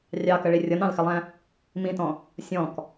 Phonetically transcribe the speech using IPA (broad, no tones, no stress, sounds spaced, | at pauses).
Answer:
rʲ ɑ k ə ɭ i rʲ ʌ n ɑ̃ l x ɪ lˠ æ̃ | m ĩ t ɔ̃ | sʲ ɔ̃ k